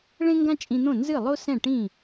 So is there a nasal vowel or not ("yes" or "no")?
yes